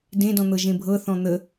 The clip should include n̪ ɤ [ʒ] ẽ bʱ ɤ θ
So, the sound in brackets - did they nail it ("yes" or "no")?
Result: yes